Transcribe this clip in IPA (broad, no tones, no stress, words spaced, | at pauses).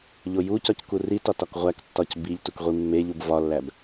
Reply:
ʎojucɒc kuritɒt ɒkʁʷæktːɒc biʎ tukʁʷimːeʎub vɒlːæb